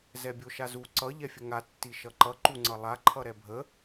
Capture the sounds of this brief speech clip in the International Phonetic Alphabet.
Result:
z ɛ bʲ o ʃ a z u ǀ ʌ ʎ ɛ fʲ ə ŋ a tː i ʃ ʌ ǃ ʌ ǃ u ŋ͡ǀ ʌ lˠ a ǃʰ ʌ ɾ ɛ bʱ ə

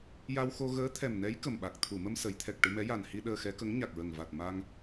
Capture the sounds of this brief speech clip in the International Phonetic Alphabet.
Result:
j a˧ w x o˧ ɣ əː˧˥ t̪ʰ ɛ˨˩ m n ɛ˧˥ j k ə˨˩ m ɓ a˨˩ k̚ t̪ʰ u˨˩˨ m ə˧ m s ə˨˩˦ j t̪ʰ ɛ˨˩ k̚ ʈ ɨ˧ m ɛ˧˥ j a˨˩ n h i˧ ɗ əː˧ x ɛ˧˥ k ə˧˥ ŋ ɲ a˨˩ k̚ ɹ ə˨˩ ŋ v a˨˩ t̚ m a˧ ŋ

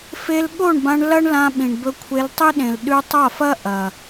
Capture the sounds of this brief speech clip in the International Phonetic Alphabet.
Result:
f e˧ l ɠ o˦˨ ɳ b ã˧ ɳ l ɐ˦ ɳ l ã˧ ɓ ĩ˨ ɳ b ɵ˧ kʷʰ e˧ l tˤ i˦ ɗ ẽ˨ l ɗ ʉ˧ tˤ a˦˨ f ɐ˦ ʔ ɐ˨

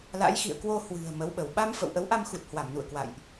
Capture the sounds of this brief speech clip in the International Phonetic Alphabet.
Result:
l a̰˧˥ j x ḭ˧˨ ə̯ k w o˧ h w ɨ̤˨˩ ə̯ m ə˨˦ w ɓ ə˧˩ w ɓ a˧ m f ə̰˧˨ w ʔ ə˨˦ w ʔ a˧ m x u˨˩ t̚ h w a˧˩ m n ṵ˧˨ ə̯ k w a̰˧˨ j ʔ

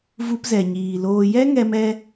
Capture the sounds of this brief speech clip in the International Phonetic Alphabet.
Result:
v u˧ p z ɛ˨ ɲ iː˨ l oː˧ j ɛ˦ ŋ ɛ˧ m ɛ˧

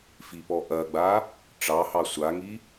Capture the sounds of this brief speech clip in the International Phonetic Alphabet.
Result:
f i p ɔ ʔ ɐ ɡ͡b a | ʈ͡ʂ ɑ h ɑ sʷ a ŋ i

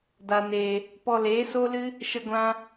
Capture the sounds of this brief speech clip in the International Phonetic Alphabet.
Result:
d a˨ n eː˨ | p ɔ˧ l eː˨˦ s o˦ l ɨ˦ | ʃ ə˧ ɡʷ ã˧

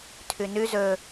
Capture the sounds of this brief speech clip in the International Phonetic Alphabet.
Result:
tʰ ʉ n ʉ z ɵ

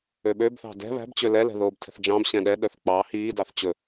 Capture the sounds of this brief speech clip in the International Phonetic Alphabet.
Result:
ø ɓ ø b θ ɑ̤ d ɛ̤ β æ̤ b t͡ɕ ø l ɛ l ɛ̤ ð oː b tʰ ɛ̤ θ d͡ʒ ɑ̃ b ɕ ɛ̃ ɗ ɛ ɗ œ θ k͡p ɑ h iː d ɑ θ t͡ɕ ɵ

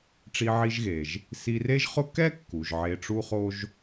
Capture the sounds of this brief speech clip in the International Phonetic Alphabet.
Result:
ʈ͡ʂ i˧ ʕ i˧ ʒ ɣ e˩ ʒ | s i˧ r e˥ ʒ χ ʊ˥ k ɛ˥ kː u˩ ʒ ʕ e˧ ʈ͡ʂ u˥ χ o˥ ʒ

